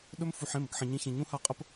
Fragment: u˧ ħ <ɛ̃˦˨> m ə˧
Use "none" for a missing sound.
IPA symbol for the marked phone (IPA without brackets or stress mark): ẽ˦˨